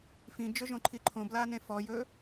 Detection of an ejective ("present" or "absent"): absent